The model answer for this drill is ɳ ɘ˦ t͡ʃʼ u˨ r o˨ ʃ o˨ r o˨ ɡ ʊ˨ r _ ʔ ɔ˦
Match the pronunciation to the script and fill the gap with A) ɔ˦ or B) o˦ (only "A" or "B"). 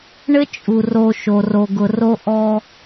B